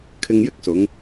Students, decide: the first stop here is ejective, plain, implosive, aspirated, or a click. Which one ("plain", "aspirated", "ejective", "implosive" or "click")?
aspirated